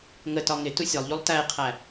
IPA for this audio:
ŋətɒ ŋɪ tusʲɒlˠʎulˠ tæɪ̯qʰæ

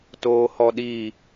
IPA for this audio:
toːhɔɗiː

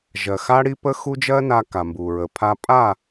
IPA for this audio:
ʒɜ˨xa˦ɽi˦pə˦ xu˦d͡ʒɜ˦ na˦ka˨ mbu˨ɹə˨ pʰa˦ pʼa˦˨

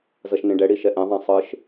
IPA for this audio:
zʌʃnẽɖɛɽi ʃɛʔɛ̃ðˤã sˤɯʃ

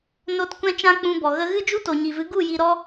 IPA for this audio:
no˧t kʷɛ̃˦t͡ʃã˦k͡pũ˧bɔ˨ ɣə˧ɣɨ˦ d͡ʒu˦to˨ɲi˨vɨ˨˦ ɡu˦˨ji˧ɾɔ˦

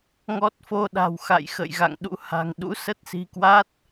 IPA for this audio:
ŋɔ˦˥t̚fo˧ɗa̤˨˩w xa̰˧˨jxə̰˧˨j ɣa̰˧˨ŋɗṵ˧˥ha̤˨˩ŋ ɗṵ˧˥sə˦˥t̚si̤˨˩kwa˦˥t̚

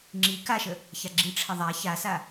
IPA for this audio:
ŋ͡ǁi kaʃə | çaɡ͡ǁiʈ͡ʂʰə ðˤa çasa

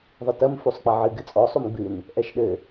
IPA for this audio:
ðˤɨtɐm fusˤk͡pɐʕɨ ɡɨt͡sʼɔ sˤumɡ͡bɨn | ʔɛʃɗɘ

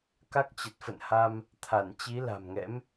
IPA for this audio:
ka˦˥k̚t͡ɕə˨˩t̚ fə̰˧˨nha˧m | t̪ʰa˧˩nt͡ɕi˨˦ la̤˨˩mŋɛ̰˧˥m

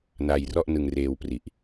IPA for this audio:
na˧jrɔ˥˩ʔnɯ˧ŋreː˧w pri˨˩ʔ

